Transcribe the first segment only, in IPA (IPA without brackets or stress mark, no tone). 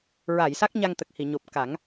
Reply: ɹ